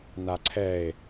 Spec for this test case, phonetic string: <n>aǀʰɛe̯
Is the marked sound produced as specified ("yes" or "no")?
yes